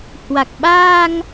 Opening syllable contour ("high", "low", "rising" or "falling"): low